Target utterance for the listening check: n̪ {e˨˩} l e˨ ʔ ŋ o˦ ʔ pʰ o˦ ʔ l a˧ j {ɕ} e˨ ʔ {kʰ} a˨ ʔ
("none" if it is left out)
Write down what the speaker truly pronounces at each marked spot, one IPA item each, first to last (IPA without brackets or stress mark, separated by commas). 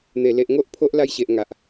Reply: e˨˩, ɕ, ŋ